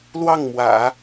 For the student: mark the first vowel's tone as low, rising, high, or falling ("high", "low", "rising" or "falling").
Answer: falling